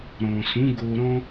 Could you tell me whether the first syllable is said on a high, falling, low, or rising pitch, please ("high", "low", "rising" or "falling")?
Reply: low